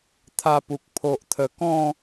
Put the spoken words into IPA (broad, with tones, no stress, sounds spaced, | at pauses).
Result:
t̪ʰ a˧ p u˨ k̚ pʰ o˨ ʔ t̪ʰ ə˨˩ k ɔ̃˥˧